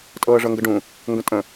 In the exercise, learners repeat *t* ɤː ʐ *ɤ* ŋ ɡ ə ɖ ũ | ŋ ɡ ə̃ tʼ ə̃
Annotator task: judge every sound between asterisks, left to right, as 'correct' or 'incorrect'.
incorrect: tʼ, correct

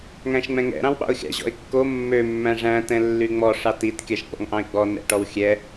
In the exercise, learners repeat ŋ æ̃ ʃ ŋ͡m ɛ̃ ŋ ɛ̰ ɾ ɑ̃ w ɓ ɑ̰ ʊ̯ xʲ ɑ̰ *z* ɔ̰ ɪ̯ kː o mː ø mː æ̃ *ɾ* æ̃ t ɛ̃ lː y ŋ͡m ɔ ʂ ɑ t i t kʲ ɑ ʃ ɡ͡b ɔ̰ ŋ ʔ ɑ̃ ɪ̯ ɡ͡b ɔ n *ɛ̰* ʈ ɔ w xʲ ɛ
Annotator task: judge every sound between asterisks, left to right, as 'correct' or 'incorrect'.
incorrect: ʑ, incorrect: ʐ, correct

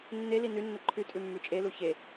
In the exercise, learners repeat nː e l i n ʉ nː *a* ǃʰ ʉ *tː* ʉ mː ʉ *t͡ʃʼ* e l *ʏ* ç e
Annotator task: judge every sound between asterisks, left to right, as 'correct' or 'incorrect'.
incorrect: ə, incorrect: tʼ, correct, incorrect: u

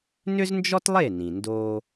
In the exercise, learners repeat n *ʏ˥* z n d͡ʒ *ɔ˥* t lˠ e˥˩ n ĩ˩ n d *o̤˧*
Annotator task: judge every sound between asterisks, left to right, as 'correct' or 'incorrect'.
correct, correct, incorrect: o˧

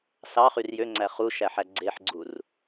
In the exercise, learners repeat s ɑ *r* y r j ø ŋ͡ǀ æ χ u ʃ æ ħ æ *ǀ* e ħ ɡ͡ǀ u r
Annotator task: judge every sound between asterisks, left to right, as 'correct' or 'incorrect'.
incorrect: χ, incorrect: ɡ͡ǀ

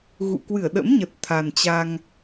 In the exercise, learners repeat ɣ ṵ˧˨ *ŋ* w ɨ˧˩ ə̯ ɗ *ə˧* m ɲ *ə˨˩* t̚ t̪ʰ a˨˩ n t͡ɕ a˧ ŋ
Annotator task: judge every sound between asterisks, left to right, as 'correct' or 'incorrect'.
incorrect: k, incorrect: ə̰˧˥, correct

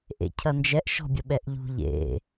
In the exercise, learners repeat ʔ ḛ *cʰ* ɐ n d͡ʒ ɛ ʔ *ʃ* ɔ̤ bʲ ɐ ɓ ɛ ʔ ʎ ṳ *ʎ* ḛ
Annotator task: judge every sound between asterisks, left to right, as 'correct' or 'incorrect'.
correct, correct, correct

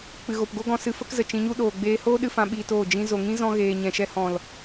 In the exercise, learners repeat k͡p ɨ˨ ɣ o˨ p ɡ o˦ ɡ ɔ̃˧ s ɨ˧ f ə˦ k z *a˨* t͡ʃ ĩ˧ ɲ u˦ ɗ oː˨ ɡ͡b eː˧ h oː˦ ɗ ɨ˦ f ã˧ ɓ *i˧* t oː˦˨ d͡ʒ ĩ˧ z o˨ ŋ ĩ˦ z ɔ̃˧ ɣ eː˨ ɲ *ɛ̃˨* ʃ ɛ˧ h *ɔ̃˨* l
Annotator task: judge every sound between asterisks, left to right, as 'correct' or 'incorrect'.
incorrect: ə˨, incorrect: iː˧, correct, correct

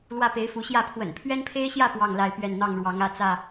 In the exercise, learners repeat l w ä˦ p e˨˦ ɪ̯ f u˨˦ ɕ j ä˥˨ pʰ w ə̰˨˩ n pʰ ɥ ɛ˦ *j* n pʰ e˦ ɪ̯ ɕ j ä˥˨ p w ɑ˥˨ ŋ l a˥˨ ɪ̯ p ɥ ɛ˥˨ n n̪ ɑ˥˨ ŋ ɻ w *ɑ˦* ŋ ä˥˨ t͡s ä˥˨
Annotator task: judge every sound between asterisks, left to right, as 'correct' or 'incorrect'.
incorrect: none, incorrect: ɑ˨˦

